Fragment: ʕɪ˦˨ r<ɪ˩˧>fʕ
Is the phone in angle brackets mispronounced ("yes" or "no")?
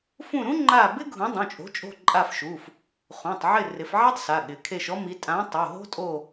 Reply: no